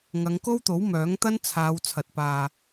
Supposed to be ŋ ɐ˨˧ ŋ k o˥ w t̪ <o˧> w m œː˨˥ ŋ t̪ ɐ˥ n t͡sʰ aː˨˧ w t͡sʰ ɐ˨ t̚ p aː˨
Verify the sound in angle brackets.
incorrect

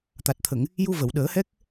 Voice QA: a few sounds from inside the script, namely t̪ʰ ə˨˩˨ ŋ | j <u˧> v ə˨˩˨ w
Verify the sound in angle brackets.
correct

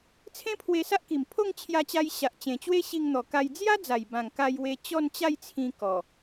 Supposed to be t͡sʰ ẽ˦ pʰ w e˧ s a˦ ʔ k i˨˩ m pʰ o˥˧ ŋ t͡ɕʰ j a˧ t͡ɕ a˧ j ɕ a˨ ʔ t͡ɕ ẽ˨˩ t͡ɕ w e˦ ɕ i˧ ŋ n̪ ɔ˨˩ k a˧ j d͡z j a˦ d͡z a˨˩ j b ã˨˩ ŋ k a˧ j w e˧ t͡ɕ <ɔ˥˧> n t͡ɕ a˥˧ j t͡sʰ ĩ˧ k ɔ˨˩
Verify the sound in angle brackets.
correct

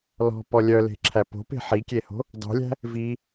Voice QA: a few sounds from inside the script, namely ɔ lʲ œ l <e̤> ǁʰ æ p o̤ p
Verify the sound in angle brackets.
correct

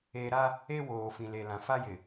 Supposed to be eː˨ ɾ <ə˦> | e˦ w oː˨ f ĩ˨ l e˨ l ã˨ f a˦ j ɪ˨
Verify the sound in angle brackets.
incorrect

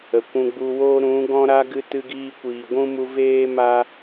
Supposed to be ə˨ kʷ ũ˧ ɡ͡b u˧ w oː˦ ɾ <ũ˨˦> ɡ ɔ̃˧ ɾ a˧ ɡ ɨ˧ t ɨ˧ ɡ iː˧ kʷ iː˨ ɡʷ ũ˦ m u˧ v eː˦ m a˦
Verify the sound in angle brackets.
correct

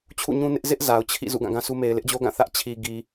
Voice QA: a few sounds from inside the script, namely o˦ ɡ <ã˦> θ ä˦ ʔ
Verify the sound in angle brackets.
incorrect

